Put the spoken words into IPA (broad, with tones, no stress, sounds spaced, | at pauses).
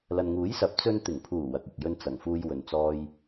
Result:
l ɐ˨ n ŋ uː˨˥ j s ɐ˨˥ p̚ t͡s ɵ˧ n t̪ ɪ˨˩ ŋ pʰ uː˨˩ w ɐ˨ k̚ ɪ˨ k̚ j ɵ˧ n t͡s ɐ˨˩ ŋ f uː˧ j w ɵ˨ n t͡s ɔː˧ j